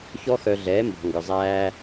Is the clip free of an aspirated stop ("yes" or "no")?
yes